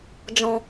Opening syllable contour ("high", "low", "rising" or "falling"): low